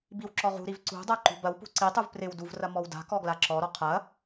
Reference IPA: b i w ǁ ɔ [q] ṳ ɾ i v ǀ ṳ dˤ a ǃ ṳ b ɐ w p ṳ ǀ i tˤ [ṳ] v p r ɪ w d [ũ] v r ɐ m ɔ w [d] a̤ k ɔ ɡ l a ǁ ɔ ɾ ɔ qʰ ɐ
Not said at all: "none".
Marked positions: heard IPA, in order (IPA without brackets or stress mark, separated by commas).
ʁ, u, u, d